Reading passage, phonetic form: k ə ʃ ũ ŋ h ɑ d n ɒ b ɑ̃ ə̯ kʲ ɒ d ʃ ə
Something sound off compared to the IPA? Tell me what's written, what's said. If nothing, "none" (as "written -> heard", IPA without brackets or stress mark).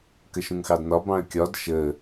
h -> x